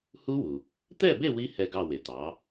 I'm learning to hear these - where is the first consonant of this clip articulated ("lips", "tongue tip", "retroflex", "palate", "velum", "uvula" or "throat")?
throat